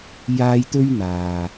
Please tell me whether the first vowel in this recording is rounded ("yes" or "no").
no